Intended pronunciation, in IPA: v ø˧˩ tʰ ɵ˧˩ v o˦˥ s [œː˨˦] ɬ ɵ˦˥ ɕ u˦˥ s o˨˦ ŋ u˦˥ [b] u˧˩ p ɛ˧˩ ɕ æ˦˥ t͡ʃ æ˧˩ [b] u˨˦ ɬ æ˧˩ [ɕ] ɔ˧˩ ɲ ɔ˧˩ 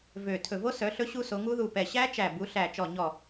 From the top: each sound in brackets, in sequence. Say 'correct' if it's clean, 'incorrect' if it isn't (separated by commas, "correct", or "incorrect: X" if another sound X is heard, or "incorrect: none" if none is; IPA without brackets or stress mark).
incorrect: œ˨˦, incorrect: ð, correct, incorrect: t͡ʃ